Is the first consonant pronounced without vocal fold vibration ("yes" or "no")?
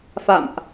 yes